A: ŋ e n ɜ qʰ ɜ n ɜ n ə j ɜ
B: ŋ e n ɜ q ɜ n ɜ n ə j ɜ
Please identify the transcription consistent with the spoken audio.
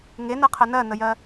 A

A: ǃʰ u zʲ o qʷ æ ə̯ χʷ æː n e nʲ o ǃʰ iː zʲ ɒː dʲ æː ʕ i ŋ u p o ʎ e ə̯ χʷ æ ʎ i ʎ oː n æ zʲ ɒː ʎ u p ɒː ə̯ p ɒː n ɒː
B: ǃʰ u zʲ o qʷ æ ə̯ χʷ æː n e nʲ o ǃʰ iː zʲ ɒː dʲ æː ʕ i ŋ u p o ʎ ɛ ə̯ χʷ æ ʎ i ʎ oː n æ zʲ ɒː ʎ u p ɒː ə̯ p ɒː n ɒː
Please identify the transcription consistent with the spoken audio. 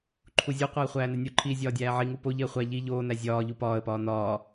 A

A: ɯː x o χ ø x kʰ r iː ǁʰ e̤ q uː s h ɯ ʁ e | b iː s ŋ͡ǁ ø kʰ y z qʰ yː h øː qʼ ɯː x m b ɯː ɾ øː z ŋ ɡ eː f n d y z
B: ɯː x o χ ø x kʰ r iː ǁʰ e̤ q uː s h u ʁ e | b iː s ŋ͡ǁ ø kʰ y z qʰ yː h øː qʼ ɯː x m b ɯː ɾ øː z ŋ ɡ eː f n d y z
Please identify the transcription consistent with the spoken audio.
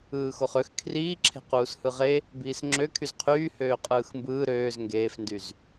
A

